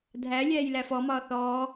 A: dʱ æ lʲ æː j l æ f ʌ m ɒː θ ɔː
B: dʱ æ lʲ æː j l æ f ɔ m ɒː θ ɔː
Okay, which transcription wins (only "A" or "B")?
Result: B